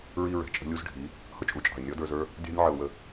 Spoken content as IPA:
ɹ i˧ ɹ ɛ̤˨ t͡ʃʼ ə̤˧ lʲ u˧ z ɖʱ i˨˦ | h ʊ˦ t͡ʃʼ u˨ t͡ʃʼ ɑ̤˨ ɪ̯ nʲ ɔ˦ d ə˞˧ z ə˞˦ | dʲ ɑ̤˧ nʲ ʕ ə˧ ʊ̯ w ə˧

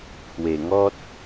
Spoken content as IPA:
pʰ w e˨˩ ŋ ɔ˦ t̚

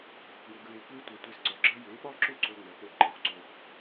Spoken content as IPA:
ɡ o˨ kʷ j ʊ˧ ɡ ɹ e˧ kʷ e˦ tʷ ɐ˧ tʷ e˧ s ǀ ɒ˨ ɡ͡ǁ ɐ˦ j e˨˦ ɓ ɒ˦ ǁ ʊ˦˨ ǀ o˦ ŋ͡m ɐ˨˦ k͡p o˦˨ ɡ ǃ ɛ˨ xʷ ǀ o˧ xʷ

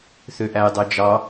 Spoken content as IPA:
θ ø ʔ æ j dˤ ø d͡ʒ ɑ

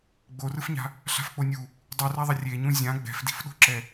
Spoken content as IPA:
ɡ͡b o r ɯ f ɲ a̤ | ɬ a̤ f k͡p o nʲ u | dˤ u r a ðˤ ʌ rʲ e ɲ ũ zʲ ã ɡ͡b ɛ̤ f d i̤ f ɗ o̤ ǁ ɛ

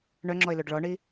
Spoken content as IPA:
ɳ œ ŋ͡ǁ ɔ ɪ̯ l o ɖ ɭ ɔ ɳ i

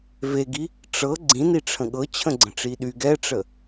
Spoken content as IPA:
v e ɡ i | ʈ͡ʂ ɤ ɡ͡ǀ ĩ n i ʈ͡ʂʰ ə̃ ɠ ɤ t͡ɕʰ ə̃ ɡ͡ǀ ə̃ ʈ͡ʂ i ɗ y ɡ ɛ ʈ͡ʂ ə

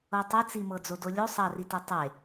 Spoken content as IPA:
ɤ tˤ e t͡s i m ɤ d͡z o d o lʲ o sˤ ɑ r i t e tˤ e

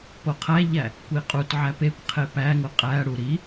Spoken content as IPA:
p o qʰ æ ʎ æ | kʷ i qʼ u t ʕ æ p e kʷ qʰ e p æ ŋ o qʼ æ ɽ u ɾ i

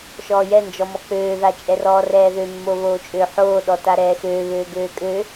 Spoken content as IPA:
ʃ ɔː j ɛ n d͡ʒ ɔ m ɔ k͡p øː ð a t͡ʃʼ ɛ r ɔː r ɛː ð ø mː o β oː t͡ʃʼ ø ħ oː ɗ ɔ t a ɾ ɛː x øː β øː ɡ øː kʼ ø

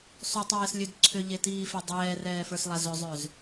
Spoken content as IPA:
sˤ ʏ tˤ ɛː s lʲ ø d ǀʰ ʏ ʎ e t iː f e dˤ ɛː r ɛː f ə˞ s lˠ a z ʏ zˤ ø z

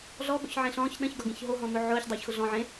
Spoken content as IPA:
ɮ ɔ ɠ o̰ ç ʕ ẽ ɬ ɔ̃ː ç ɗ ə̃ ç ɡ ɒ ɡ ẽ ç ɦ o ɦ ɔ̃ n̪ o ʕ ʊː ç dˤ ʊː ç x ʊ ɮ ɔ̃ ʕ ẽ

